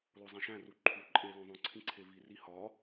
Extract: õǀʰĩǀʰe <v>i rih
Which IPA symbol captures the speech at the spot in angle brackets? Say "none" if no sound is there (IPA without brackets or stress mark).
v